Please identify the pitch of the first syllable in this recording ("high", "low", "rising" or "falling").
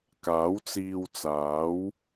rising